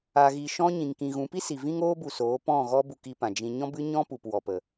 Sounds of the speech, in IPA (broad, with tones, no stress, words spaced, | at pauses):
a˨ɣi˨ ʃɔ̃˧ ɲĩ˨ŋkĩ˨ɣũ˨˦pi˦ si˨vĩ˦ŋoː˦bu˨ soː˨˦pɔ̃˦˨ɣɔ˦bu˧k i˧pã˨d͡ʒĩ˧ ɲɔ̃˦bɨ˦ɲɔ̃˦ pu˨pwɔ˨pə˨